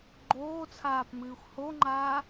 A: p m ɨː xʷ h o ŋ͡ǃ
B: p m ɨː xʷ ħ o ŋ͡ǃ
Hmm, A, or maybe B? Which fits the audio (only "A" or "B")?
A